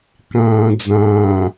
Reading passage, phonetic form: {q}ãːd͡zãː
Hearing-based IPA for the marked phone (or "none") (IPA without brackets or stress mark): k